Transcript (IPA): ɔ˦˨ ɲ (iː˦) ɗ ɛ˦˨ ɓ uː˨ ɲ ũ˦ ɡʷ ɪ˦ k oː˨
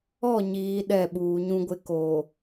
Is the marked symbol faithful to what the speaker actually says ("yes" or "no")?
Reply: no